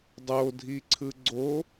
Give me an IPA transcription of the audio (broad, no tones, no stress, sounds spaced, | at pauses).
dˤ o dʱ i ǀʰ ɯ ɡ͡ǀ o